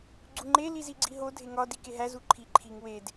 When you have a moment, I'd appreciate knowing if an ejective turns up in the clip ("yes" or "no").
no